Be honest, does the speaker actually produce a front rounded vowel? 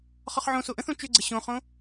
yes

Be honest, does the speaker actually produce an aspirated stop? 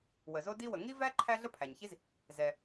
yes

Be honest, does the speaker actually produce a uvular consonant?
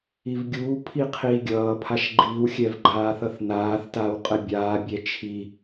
yes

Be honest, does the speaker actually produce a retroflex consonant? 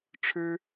yes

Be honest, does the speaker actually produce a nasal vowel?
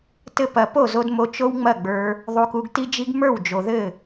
no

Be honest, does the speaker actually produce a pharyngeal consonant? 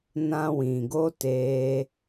no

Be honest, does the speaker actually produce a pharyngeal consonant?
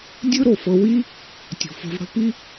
no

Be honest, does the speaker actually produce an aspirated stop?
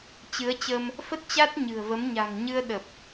no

